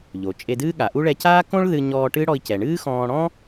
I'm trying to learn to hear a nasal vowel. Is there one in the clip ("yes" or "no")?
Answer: yes